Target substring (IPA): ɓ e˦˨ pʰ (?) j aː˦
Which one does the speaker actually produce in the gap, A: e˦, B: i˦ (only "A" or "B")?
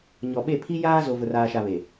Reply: B